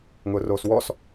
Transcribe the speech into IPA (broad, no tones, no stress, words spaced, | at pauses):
ŋʊːroːswɔs